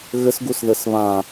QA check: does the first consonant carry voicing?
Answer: yes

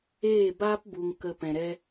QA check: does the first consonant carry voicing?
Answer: yes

